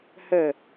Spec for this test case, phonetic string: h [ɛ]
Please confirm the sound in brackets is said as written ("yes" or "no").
no